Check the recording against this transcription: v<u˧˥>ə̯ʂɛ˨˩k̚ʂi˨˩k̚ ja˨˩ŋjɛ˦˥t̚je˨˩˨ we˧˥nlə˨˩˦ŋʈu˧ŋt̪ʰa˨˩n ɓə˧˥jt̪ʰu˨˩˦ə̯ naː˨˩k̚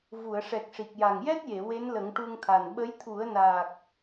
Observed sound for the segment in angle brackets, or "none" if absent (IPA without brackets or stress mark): u˨˩˨